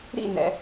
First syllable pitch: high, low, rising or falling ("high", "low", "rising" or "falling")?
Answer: falling